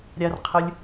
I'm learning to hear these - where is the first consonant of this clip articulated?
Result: tongue tip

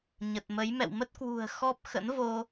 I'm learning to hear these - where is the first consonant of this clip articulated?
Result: palate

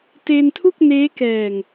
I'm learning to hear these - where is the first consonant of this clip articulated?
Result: tongue tip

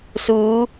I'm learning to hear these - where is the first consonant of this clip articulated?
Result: tongue tip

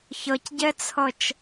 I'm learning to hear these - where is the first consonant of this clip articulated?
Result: palate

